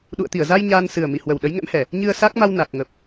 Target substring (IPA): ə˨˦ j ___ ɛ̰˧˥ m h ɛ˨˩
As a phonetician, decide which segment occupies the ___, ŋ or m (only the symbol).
ŋ